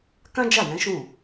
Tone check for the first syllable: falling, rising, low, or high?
high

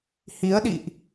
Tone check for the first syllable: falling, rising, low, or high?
rising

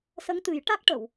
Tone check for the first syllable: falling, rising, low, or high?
rising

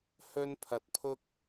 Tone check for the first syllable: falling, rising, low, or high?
high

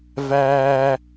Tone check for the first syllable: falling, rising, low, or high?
high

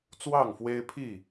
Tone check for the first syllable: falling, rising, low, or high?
falling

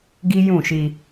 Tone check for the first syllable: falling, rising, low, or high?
high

